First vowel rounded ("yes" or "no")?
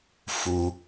yes